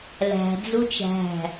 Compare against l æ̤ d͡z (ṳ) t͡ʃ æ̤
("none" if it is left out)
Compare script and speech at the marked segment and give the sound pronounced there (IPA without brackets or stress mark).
u